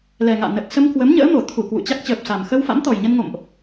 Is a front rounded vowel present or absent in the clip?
absent